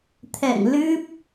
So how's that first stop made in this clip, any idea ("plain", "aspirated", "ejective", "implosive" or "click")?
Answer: aspirated